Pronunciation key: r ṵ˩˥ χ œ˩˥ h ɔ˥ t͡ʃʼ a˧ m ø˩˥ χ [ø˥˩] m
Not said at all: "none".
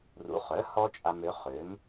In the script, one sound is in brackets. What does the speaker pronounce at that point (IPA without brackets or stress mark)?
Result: ø˩˥